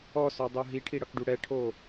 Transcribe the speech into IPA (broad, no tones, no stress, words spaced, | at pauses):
ɔsɔdˤo ɦiʈʰiɽʌkɖu ɽɛʈʰo